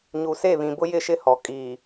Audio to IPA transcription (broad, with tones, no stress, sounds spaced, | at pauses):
ɲ u˨ s e˦˨ β ĩ˨ b ʊ˦ j ɪ˦˨ ʃ ɪ˦ h ɔ˨ kʼ iː˨